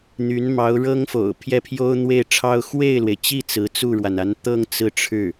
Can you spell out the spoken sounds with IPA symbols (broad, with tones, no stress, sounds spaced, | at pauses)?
n̪ y˧˥ n m ɑ˧˥ ʊ̯ ɻ ɤ˥ ŋ f o̰˨˩ ʊ̯ pʰ j ɛ˥˩ pʰ j o˥ ʊ̯ n̪ w e˥˩ ɪ̯ ʈ͡ʂʰ ɑ˥ ʊ̯ x w e˥˩ ɪ̯ l w e˩ ɪ̯ t͡ɕ i˥˩ t͡s ɹ̩˧˥ t͡s u˥˩ ɻ w a˩ n a˧˥ n t̪ ɤ˥˧ ŋ t͡s ɹ̩˥˧ ʈ͡ʂʰ ɻ̩˥˩